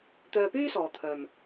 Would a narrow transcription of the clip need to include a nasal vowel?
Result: no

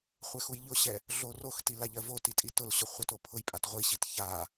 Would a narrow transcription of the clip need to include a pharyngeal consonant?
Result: no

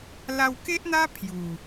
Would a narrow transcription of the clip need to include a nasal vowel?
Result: no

